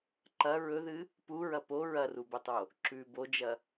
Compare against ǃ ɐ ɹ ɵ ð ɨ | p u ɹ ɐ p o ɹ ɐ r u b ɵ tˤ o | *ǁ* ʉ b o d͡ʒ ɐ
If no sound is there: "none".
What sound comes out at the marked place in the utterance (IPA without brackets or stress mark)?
ǁ